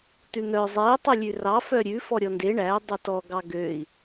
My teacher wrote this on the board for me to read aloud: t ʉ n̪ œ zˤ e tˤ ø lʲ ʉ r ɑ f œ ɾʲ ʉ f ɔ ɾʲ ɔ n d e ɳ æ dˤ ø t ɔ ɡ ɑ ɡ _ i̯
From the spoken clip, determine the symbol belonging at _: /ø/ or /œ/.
ø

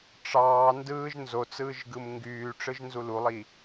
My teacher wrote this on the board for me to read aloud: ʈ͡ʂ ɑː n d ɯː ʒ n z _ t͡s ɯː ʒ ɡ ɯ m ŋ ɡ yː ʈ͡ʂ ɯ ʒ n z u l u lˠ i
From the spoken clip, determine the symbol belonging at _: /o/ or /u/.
o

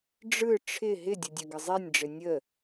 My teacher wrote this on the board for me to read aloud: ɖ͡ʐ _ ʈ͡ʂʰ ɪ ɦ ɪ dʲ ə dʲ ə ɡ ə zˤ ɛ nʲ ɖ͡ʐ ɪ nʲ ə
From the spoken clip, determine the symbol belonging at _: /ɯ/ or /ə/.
ɯ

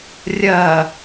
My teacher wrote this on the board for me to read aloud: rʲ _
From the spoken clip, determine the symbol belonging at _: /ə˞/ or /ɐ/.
ɐ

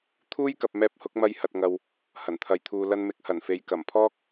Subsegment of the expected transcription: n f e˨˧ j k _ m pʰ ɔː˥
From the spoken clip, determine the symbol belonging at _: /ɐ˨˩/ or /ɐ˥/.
ɐ˨˩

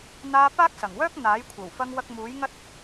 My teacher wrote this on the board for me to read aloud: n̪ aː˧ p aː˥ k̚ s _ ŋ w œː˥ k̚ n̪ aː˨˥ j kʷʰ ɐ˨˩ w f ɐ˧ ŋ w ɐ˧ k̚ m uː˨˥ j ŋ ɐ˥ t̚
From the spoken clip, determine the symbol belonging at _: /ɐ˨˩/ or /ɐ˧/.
ɐ˨˩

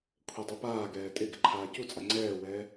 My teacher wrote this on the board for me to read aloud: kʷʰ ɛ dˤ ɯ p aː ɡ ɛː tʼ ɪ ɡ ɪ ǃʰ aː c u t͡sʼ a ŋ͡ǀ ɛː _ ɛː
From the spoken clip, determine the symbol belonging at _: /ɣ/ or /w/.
w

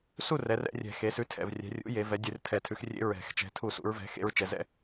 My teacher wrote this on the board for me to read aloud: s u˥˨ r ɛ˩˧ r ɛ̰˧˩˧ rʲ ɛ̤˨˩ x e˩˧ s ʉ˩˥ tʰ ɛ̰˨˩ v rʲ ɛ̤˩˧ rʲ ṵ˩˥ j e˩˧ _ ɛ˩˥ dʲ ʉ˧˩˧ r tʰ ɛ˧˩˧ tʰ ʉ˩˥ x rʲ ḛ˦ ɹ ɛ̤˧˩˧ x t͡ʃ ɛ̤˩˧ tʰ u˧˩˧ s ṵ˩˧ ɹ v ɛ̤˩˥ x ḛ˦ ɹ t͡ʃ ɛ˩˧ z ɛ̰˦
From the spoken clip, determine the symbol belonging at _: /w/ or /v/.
v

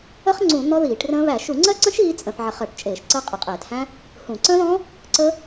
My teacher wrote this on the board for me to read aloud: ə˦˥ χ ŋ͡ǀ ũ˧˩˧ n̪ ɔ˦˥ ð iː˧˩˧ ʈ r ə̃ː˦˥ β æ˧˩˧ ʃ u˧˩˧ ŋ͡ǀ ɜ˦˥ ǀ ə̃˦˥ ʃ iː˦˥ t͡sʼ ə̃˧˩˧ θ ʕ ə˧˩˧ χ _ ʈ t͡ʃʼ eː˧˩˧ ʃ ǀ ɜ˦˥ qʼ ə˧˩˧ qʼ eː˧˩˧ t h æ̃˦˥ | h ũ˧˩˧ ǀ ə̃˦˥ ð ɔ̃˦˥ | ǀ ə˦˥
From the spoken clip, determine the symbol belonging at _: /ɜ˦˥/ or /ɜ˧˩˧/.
ɜ˧˩˧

